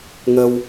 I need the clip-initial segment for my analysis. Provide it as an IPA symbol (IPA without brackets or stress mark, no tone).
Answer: ŋ